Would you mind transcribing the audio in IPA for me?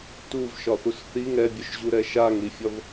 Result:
tuvʃɒθus θi ŋɛbʲœʃʑuɾɛ ʃaŋɾifʲɒv

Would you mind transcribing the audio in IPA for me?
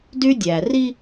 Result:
dy˦dʲæ˨ ri˦

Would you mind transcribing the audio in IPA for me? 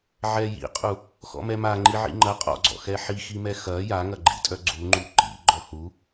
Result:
ʕɛjḭqʼu | xɔ̰mɛma ŋ͡ǃiʕḭŋ͡ǃɐ qʼɔ̰ɡ͡ǀɔ̰xɛ ħiximɛ xɐ jaŋɐɡ͡ǃḭ tʼœɡ͡ǀuŋ͡ǃu ǃḭ ɡ͡ǃɔhu

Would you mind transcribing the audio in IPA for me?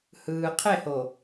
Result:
hɯː˨ qʰe˦˨ho˨

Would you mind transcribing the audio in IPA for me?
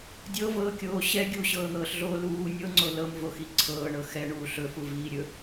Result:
dʲɤvɤːkʲoː ɕɛ ɡʲuɕɤːn̪ɤːɬɮoː luː nʲɤŋ͡ǀo lɤmvoxi ǀʰɤːɳɤ xɛɳuː ɬɵfuviː ɾʲɵ

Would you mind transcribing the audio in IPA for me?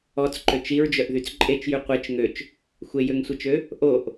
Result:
ɔt͡sǃøt͡ʃ iɹd͡ʒœʔðyt͡s ǃʼet͡ʃjy qʷet͡ʃ ŋøt͡ʃ | xʷejøŋsʷet͡ʃø | ʔoʔ

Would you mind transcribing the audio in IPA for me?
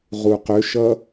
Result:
ʁuqøʃʌ

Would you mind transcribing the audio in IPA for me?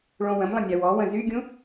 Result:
ɭõwə̃mlˠə̃ nʲawɔwə̃ zyɡʲũ

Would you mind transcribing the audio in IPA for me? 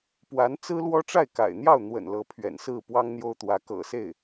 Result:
pwa˧˥nt͡sɹ̩˥lwɔ˥ ʈ͡ʂa˥˩ɪ̯ka̰˨˩ɪ̯n̪jɑ˥˩ʊ̯n̪wə̰˨˩n lɤ˧˥pʰɥɛ̰˨˩nsɹ̩˥˩ pwɑ˥ŋn̪jo˥ʊ̯t̪wä˧˥ kɤ̰˨˩se˥˩ɪ̯

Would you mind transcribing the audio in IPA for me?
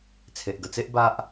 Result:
t͡sʰe˨ʔɡə˧t͡se˦ʔ ba˦ʔ

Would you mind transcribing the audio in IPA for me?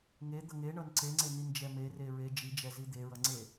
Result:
ŋed̪ʌ ŋeɳʌn ǀeŋ͡ǀenind͡ʒɛ mere ɹe d͡ʒid͡ʒɛzi d̪eɹʌŋ͡ǀe

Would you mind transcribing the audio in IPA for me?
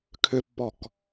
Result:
kʰʏpːɔk

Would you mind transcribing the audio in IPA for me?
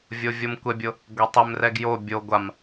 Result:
vʲovʲomkʷɛbʲʊ | ɡʷetˤɪmrɛɡ jo bʲo ɡʷam

